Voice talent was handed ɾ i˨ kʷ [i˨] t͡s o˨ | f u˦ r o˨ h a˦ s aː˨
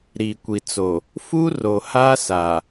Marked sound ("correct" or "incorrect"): correct